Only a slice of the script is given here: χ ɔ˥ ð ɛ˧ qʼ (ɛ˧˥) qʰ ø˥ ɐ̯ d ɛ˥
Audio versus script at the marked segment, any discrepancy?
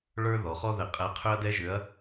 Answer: no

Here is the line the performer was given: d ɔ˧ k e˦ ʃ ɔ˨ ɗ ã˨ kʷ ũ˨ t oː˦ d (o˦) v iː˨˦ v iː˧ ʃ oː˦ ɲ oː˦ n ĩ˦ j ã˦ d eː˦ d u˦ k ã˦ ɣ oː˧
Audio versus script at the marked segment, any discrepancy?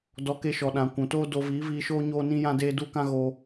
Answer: yes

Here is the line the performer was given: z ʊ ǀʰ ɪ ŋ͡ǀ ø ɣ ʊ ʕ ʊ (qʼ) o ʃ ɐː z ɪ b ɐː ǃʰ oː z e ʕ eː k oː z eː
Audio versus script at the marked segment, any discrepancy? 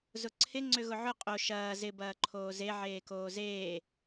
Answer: no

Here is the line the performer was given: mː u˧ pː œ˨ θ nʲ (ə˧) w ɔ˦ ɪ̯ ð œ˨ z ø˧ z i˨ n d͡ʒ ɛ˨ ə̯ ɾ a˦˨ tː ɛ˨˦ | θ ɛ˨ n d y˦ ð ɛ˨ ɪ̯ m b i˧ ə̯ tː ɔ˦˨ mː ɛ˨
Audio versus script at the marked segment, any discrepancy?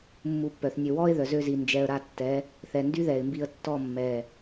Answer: yes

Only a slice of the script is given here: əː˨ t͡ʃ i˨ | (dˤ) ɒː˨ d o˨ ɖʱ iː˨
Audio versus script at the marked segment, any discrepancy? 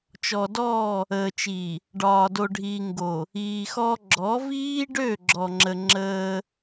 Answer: yes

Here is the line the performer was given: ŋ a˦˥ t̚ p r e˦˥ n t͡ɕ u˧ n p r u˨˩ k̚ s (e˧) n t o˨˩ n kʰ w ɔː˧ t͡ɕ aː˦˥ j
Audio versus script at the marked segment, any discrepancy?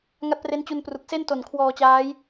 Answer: yes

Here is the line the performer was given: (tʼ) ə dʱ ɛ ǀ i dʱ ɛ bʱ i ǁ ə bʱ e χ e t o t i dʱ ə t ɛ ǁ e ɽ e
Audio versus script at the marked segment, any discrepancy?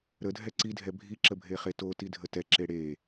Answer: yes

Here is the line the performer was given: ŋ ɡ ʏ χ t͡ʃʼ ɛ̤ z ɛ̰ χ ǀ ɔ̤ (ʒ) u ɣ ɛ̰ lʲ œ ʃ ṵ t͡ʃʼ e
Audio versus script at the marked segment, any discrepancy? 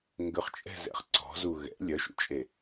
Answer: yes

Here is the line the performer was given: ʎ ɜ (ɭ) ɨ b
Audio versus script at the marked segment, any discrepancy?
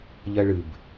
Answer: no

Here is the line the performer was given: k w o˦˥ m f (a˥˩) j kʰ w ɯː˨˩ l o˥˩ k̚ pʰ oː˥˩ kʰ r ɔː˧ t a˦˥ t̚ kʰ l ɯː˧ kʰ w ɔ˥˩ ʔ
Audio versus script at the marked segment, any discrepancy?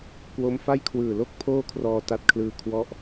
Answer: no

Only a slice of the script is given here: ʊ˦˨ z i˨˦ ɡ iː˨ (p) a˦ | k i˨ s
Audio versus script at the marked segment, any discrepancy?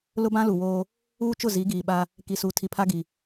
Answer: yes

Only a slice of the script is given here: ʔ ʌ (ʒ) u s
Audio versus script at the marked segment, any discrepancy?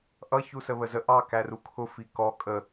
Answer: yes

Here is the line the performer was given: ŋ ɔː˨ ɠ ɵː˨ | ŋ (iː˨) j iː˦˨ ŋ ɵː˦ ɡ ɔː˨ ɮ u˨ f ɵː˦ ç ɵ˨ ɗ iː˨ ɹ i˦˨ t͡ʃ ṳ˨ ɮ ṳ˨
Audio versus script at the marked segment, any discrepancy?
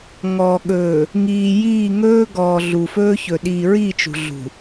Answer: no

